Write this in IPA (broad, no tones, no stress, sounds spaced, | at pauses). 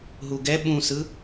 ɦ u ɡ ɛ ɓ ũ s ɯ